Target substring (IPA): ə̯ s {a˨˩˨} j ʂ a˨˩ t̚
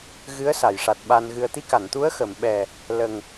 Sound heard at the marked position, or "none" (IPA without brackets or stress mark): a˨˩˨